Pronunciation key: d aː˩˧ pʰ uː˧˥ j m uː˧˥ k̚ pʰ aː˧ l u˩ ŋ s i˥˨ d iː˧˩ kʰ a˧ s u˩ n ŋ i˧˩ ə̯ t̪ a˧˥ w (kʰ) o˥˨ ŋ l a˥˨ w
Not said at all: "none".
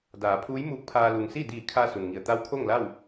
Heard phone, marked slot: kʰ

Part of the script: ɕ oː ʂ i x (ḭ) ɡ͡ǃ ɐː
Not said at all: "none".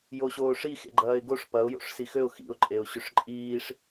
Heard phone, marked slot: ḛ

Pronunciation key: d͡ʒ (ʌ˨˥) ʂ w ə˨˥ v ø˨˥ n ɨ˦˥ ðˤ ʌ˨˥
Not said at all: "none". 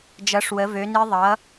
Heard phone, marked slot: ʌ˨˥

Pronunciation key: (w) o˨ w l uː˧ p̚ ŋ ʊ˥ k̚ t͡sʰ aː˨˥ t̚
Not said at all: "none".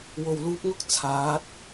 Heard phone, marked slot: w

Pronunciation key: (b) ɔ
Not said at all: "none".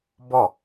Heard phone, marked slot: b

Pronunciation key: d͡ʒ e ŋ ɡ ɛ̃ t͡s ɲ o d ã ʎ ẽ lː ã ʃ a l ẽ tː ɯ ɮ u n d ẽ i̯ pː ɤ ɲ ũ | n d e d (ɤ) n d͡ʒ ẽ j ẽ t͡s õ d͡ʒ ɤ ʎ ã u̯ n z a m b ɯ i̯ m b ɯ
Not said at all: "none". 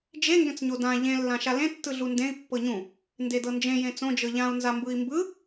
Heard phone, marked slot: ɤ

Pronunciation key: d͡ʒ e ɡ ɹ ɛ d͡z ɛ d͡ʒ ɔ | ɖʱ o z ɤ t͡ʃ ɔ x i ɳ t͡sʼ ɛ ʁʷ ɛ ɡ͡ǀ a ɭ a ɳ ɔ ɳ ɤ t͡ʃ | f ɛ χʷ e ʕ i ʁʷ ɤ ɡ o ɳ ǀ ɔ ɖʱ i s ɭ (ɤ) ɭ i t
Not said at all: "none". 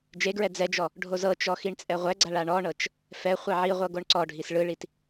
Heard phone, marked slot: ɯ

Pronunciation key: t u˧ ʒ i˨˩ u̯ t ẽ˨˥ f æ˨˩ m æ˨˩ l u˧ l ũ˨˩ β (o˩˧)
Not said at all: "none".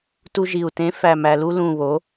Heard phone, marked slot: o˩˧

